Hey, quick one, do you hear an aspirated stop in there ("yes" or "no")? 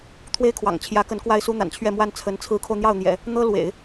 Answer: yes